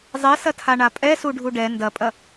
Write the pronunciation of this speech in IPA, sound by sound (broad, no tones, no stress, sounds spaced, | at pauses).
zˤ e s ɐ tʰ a ɳ a pʼ ɛ s u ɖʱ u ɖ ɛ n d ɐ pʼ ɐ